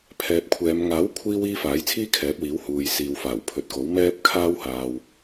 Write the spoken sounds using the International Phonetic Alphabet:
pʰ ɛː˨ p̚ kʷʰ ɛː˨˧ m ŋ aː˨˥ w kʷʰ iː˧ w iː˧ f aː˨˥ j t͡sʰ iː˥ kʰ ɛː˨˥ p̚ w iː˨˥ w h uː˨ j s iː˨ w f aː˨˩ w pʰ ɵ˨˥ t̚ k o˨˥ w m ɛː˥ p̚ kʰ aː˥ w h aː˧ w

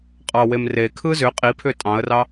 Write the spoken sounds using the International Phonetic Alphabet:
qʼ ɑ w e m r e kʰ ɯ z ʏ qʼ i pʰ ʏ tʼ ɑ̃ ə̯ r ɑ

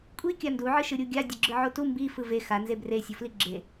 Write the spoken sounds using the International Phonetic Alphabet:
kʷʼ i kʲ a n d u ʕ ɯ ʃ ɯ ɾʲ u ɡʲ a dʲ o ɡ͡ǁ ɯ ʕ o t u m b i f ɯ v e x a n z e b r e sʲ o f l i ɡ͡ǁ e

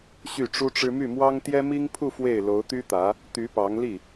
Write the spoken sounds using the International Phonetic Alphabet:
ɕ y˥˩ ʈ͡ʂ u˥ ʈ͡ʂ ɻ̩˥ m y˥˩ m w ɑ˥ ŋ t̪ j ɛ˥ m i˥ ŋ pʰ u˥˧ f w e˥˩ ɪ̯ l o˧˥ ʊ̯ t̪ y˥ t̪ ä˧˥ | t̪ y˧˥ p ɑ˧˥ ŋ l i˥˩

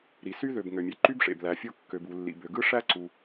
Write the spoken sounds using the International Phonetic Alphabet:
ɾ i˩ s y˥ ð ø˩ b ŋ ø˩ mʲ e˩ ǃ y˥ b ʂ ḛ˩ b l æ˩ fʲ o˥ kː ø˩ b u˩ lː ḭ˩ b ø˩ ɡ ɯ˥ ʂ æ˥ ǀ u˩

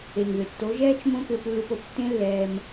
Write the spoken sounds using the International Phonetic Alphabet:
e˨ ŋ ð ʏ˨ tː o˨˦ ʒ ɛː˦ t͡ʃ m õ˦ k ʏː˧ p lː u˧ p o˧ p tː ẽ˦ lː ɛː˧ m

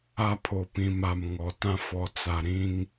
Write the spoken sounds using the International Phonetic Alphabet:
a˦ pʰ o˨ p ĩ˨ m a˨ m ŋ ɔ˨ t ã˦ f ɔ˨ t͡s a˨ ɾ ĩ˦ ŋ

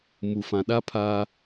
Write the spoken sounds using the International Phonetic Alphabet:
m u˨ f ã˨ ɗ a˦ pʰ a˦

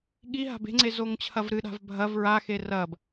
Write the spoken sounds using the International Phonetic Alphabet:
ɠ i ɦ a̤ b e̤ ŋ͡ǀ e z o ŋ t͡ɕʰ ɐ v ɾ ɨ ɗ a̤ v bʱ ɐ v ɹ a x e r ɐ b

